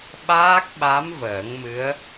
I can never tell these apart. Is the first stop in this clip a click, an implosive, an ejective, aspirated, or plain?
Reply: implosive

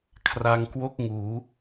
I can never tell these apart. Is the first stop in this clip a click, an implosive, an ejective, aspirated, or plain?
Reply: aspirated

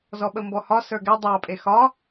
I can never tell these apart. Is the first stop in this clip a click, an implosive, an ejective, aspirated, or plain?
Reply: implosive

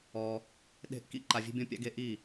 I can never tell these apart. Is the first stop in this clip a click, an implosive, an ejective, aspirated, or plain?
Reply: implosive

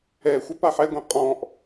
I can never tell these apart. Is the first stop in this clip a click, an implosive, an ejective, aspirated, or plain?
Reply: plain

